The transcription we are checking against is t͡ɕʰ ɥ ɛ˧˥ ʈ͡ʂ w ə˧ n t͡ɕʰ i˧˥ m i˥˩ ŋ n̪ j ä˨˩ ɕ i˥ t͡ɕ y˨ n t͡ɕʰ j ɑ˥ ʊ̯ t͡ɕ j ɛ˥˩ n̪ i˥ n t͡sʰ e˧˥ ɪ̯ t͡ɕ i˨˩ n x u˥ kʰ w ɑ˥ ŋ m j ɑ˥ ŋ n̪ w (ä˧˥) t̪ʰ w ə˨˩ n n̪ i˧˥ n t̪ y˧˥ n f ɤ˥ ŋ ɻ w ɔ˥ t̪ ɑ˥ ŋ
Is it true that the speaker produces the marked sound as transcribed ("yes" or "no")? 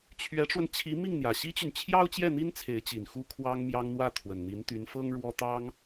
no